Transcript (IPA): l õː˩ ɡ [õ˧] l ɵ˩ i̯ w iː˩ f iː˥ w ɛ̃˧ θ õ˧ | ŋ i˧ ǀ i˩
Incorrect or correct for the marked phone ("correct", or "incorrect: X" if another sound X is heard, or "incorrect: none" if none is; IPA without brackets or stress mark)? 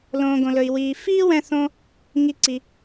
incorrect: õ˩